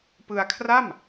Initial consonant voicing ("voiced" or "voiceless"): voiceless